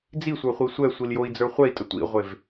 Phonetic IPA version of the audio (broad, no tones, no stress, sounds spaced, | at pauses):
d͡z i sʷ ə˞ χʷ i sʷ ɛ sʷ i l j o i̯ d͡z ə˞ χʷ ɛ i̯ tʼ ə tʷ ḭ ʁʷ e v